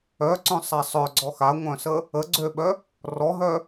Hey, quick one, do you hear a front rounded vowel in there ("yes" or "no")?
yes